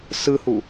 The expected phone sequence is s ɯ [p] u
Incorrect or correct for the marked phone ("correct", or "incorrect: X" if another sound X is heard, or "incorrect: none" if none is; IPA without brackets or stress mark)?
incorrect: h